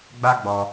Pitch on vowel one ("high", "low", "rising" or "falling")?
high